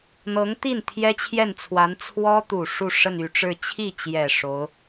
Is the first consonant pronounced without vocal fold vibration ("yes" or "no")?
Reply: no